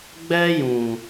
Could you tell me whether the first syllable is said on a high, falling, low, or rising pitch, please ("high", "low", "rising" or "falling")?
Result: high